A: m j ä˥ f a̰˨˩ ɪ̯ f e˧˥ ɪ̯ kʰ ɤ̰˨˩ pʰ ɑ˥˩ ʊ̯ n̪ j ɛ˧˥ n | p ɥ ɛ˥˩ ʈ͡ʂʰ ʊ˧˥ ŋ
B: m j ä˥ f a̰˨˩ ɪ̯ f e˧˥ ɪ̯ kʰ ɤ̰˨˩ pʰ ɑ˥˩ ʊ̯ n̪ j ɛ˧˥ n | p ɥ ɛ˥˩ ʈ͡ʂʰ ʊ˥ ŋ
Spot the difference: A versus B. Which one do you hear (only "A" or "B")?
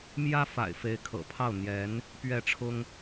B